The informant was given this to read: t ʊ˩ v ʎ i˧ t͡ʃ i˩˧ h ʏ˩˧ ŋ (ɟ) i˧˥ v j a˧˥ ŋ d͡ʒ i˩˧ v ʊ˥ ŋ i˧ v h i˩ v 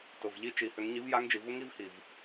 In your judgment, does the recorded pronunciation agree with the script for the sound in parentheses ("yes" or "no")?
no